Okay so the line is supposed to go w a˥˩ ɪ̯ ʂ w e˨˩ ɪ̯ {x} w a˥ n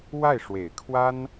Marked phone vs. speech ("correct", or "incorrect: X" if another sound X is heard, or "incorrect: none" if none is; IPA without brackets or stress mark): incorrect: kʰ